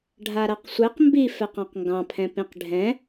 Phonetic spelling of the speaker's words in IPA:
ɖʱ a ɾ a q sʷ ɛ q m b i f ɛ q ɑ̃ q ŋ ɡ ɑ̃ pʰ ɛ̃ p ĩ q ɖʱ ɛ̃

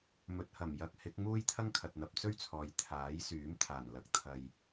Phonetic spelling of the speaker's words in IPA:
m ɵ˨ t̚ h ɐ˨˩ m j ɐ˨˥ k̚ h ɪ˨˥ k̚ m uː˥ j t̪ʰ ɐ˥ ŋ kʰ ɐ˨ t̚ n̪ ɐ˨ p̚ t͡s ɵ˥ ɥ t͡sʰ ɔː˨ j t̪ʰ aː˨˥ j s yː˨˥ m t̪ʰ aː˨˩ n l ɐ˨ k̚ t̪ʰ ɐ˨ j

